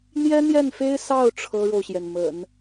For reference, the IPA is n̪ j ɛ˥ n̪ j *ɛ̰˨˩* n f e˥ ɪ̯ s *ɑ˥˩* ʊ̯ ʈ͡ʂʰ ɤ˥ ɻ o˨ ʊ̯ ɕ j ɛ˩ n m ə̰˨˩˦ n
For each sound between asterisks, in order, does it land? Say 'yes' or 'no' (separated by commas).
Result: no, yes